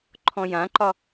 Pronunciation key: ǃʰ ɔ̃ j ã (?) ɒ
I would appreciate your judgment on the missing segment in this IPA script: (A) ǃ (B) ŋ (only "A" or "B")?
A